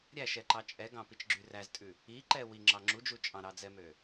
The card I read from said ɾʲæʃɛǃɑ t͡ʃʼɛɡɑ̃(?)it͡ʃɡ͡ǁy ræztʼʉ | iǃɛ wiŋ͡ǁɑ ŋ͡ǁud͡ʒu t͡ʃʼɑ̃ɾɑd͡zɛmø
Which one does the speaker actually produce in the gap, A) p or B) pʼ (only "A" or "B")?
A